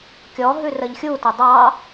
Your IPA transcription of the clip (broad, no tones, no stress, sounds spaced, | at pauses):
kʲ ɔ ɦ ʉ r ə ʎ xʲ u t ə dˤ ɑ